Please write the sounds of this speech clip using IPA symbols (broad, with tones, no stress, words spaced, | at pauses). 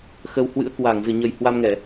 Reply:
xə˧w hwɨ̰˧˥ə̯ kwaː˧˩ŋzɨ˧˩ɲə˨˩j hwa˧mŋɛ˧˩˨